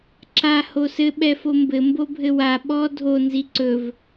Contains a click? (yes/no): yes